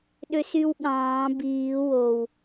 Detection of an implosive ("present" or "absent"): present